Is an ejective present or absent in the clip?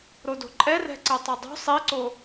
present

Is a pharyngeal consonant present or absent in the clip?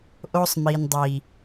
absent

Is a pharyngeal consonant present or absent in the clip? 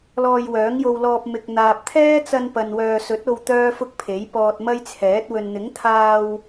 absent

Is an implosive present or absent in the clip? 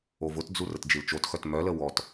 absent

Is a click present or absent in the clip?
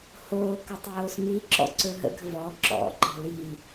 present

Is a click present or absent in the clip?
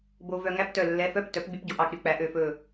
absent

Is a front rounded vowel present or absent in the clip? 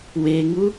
absent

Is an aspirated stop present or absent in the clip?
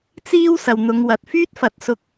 absent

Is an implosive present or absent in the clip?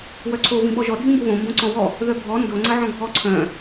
present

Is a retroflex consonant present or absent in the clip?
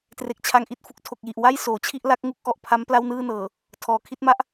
absent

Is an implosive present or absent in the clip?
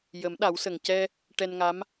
present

